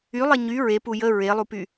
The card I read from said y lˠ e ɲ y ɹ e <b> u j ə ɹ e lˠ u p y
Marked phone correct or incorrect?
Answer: incorrect